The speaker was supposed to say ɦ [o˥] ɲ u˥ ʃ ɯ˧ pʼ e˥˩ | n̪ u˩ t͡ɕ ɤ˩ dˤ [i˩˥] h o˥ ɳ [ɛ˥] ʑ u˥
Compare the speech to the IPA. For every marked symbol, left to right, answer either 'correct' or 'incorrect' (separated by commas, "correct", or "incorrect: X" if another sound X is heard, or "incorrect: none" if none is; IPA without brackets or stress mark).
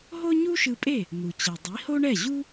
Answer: correct, correct, incorrect: ɛ˥˩